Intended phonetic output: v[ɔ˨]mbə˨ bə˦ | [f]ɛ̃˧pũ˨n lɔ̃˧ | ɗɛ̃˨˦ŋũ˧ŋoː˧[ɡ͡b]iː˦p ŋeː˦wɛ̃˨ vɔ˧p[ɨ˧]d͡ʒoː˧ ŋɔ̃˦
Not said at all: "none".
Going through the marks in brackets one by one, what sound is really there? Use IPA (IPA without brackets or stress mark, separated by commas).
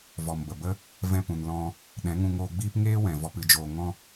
ɔ˨, v, ɡ͡b, ɨ˧